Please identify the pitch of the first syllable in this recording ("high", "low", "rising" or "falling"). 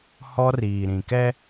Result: high